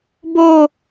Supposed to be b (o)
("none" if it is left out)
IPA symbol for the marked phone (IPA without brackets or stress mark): o